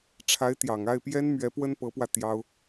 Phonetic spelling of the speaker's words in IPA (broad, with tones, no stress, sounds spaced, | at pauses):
ʈ͡ʂʰ a˧˥ ɪ̯ t̪ j ɑ˨˩ ŋ a˥˩ ɪ̯ p j ɛ˥ n m ɥ ɛ˧˥ p w ə˥ n p ɤ˧˥ p w ä˧ t̪ j ɑ˥ ʊ̯